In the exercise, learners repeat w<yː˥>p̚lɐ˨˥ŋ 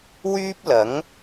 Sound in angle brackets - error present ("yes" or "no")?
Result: no